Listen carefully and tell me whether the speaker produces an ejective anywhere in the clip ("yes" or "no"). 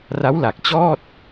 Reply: no